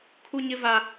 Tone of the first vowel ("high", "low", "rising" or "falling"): high